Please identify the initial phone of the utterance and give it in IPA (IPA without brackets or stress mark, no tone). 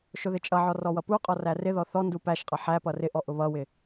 ʃ